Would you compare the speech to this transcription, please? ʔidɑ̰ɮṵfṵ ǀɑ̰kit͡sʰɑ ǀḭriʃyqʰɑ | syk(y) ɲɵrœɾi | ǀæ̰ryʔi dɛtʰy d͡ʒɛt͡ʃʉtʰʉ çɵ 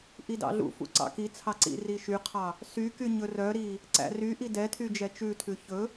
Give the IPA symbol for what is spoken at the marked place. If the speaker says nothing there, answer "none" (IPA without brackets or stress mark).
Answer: y